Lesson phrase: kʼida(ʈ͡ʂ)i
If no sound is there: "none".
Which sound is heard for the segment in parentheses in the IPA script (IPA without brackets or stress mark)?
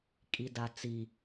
t͡s